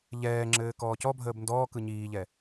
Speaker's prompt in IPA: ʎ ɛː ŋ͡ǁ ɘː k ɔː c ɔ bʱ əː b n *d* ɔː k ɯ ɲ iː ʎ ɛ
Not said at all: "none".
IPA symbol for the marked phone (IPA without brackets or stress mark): d